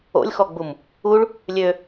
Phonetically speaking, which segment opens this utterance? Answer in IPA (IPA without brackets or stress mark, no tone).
o̰